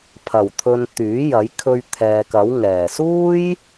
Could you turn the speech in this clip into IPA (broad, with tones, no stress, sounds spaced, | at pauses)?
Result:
pʰ ɐ˨˩ w t̪ʰ ɵ˨ n t̪ yː˨˥ j ɐ˨˥ j kʰ ɵ˧ ɥ t̪ʰ ɛː˨ k ɐ˨˥ w ŋ ɛː˨˩ s uː˥ j